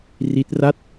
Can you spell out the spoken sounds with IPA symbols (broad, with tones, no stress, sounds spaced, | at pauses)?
r i˦˥ t̚ r a˥˩ t̚